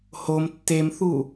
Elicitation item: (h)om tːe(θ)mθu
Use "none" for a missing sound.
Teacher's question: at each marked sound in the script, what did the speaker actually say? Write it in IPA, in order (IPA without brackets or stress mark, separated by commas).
h, none